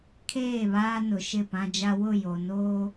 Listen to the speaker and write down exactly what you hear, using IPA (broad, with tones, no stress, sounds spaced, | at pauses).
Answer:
kʰ eː˦˨ β aː˦ n ʊ˨ ʃ ɪ˦˨ p ã˦ d͡ʒ a˦ w ʊ˦˨ j o˨ n oː˦